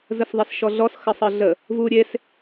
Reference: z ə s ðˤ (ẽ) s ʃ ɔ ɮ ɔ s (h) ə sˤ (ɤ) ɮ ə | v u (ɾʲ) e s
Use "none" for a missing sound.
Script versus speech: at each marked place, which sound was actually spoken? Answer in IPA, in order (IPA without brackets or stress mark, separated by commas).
e, x, ɤ, ɾʲ